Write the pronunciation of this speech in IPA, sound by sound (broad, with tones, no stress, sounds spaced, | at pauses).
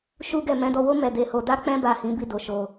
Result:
ʃ u˦ ɡ ɛ˦˨ m ɛ̃˨˦ d ɔ˧ w o˦ m ɛ˦˨ d e˧ h o˧ d a˦ k͡p ɛ̃˦ b a˦˨ h ĩ˨˦ b i˦ d o˧ ʃ o˧